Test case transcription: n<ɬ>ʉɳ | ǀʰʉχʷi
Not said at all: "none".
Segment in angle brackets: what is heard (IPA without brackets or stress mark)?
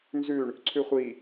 z